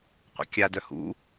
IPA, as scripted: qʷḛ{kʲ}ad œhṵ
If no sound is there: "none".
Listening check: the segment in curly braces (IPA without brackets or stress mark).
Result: kʲ